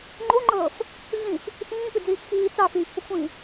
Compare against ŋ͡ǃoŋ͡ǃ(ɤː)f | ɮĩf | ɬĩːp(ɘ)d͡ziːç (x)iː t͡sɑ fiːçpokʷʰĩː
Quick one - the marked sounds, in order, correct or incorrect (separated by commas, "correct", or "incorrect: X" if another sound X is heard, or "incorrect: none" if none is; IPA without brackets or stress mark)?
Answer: correct, incorrect: ʉ, correct